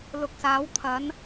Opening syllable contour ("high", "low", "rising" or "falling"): low